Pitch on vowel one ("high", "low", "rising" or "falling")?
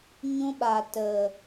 high